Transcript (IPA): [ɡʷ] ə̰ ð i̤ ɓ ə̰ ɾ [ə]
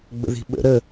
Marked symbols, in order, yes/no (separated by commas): no, yes